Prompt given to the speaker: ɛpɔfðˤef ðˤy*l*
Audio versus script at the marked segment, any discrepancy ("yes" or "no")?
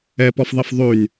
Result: yes